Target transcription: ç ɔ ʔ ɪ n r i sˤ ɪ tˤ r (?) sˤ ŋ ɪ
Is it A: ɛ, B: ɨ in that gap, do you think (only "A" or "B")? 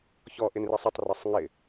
A